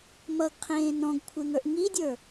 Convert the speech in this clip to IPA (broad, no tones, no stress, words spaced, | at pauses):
mʌɡqʰẽː nɔ̃ɡkʷʰeŋə˞ʔ ŋidʲə˞